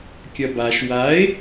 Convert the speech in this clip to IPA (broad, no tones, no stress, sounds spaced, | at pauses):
kʲ ɐ b a ʃ w a e̯